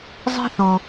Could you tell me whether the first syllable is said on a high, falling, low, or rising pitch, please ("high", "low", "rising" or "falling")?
high